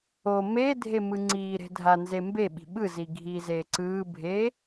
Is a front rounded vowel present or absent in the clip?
absent